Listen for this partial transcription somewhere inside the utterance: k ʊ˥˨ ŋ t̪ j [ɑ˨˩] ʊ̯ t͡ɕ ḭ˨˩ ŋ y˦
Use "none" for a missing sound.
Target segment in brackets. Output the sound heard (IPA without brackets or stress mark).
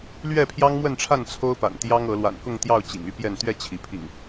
ɑ˥˨